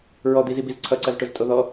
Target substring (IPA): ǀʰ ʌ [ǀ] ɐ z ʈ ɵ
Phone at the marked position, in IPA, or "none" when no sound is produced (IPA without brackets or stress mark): ǀ